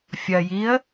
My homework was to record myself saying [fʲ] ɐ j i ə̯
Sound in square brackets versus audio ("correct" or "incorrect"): correct